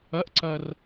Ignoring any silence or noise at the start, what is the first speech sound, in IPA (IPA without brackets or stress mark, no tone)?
ɐ